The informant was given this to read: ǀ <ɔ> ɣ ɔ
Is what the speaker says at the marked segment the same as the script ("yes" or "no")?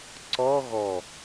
yes